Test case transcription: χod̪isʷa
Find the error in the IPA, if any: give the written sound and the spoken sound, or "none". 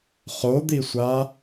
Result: none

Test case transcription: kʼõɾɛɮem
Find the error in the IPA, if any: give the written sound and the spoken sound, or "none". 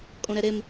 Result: ɮ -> ɾ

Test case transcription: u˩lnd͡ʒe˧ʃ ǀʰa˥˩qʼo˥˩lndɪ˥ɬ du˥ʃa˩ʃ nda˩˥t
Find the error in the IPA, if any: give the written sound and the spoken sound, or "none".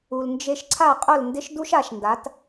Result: ɬ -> ʃ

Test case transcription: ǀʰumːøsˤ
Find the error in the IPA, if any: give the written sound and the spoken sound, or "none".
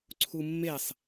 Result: ø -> e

